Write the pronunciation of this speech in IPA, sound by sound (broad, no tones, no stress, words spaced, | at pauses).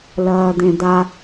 lɐːd̪ẽd̪a